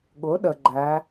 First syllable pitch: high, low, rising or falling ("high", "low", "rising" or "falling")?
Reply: rising